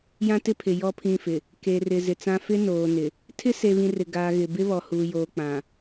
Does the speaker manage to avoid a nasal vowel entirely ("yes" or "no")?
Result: no